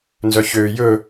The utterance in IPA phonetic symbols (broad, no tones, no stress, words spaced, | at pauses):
nzœçøː jɵ